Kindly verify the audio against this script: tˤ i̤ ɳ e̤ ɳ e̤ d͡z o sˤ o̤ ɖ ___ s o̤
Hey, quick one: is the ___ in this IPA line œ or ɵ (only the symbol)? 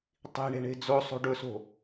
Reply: ɵ